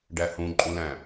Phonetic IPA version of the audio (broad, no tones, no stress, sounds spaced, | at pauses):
ɖ æ h ũ ǃʼ ũ l æ̃